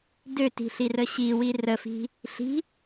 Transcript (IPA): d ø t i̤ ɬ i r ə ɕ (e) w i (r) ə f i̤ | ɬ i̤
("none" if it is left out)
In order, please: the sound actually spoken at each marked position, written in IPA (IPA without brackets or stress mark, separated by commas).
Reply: i, r